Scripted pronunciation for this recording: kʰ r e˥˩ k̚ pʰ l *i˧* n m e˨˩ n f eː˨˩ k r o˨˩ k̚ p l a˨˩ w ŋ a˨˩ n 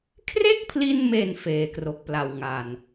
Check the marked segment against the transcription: correct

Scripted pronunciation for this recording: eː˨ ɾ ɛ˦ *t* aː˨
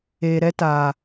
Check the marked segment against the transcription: correct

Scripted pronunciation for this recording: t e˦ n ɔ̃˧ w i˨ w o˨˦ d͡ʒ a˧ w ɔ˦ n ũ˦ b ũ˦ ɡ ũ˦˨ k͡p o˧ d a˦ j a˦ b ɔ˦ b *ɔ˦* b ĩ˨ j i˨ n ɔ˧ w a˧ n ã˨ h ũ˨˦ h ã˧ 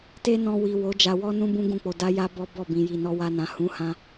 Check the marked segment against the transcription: incorrect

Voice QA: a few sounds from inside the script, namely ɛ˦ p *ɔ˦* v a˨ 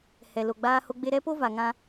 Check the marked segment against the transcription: incorrect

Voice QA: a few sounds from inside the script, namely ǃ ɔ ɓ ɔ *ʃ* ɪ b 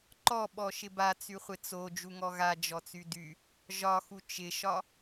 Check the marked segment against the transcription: correct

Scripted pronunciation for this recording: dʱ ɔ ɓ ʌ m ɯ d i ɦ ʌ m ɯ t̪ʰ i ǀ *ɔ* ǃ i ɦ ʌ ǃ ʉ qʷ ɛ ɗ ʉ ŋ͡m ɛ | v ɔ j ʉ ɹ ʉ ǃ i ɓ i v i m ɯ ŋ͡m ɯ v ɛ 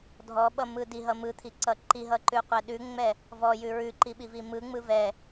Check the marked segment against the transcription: incorrect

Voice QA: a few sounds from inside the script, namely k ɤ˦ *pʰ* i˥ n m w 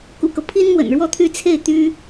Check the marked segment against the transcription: correct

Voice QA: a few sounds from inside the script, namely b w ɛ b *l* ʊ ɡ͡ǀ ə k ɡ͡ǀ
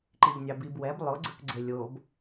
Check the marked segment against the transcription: incorrect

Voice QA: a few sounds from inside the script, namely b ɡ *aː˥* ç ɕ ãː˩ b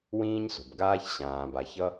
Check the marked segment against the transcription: correct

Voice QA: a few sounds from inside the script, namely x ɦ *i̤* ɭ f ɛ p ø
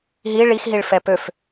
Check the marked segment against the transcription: incorrect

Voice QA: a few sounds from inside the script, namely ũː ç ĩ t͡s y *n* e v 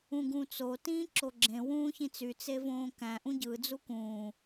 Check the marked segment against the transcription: incorrect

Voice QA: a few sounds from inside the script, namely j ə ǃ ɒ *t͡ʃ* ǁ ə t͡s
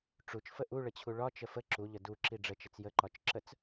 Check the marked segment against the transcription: correct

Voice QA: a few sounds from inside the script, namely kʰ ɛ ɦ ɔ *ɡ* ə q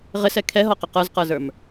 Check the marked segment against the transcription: incorrect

